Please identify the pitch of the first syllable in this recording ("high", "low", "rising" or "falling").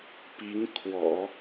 rising